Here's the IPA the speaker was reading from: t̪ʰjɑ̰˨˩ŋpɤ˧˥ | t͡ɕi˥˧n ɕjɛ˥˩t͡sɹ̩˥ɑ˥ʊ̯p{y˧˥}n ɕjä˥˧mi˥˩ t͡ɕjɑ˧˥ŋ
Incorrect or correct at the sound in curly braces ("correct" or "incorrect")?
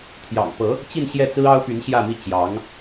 correct